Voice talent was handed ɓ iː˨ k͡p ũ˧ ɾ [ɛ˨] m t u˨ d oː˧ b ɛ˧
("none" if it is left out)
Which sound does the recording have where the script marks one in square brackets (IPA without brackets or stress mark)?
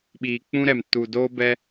ɛ˨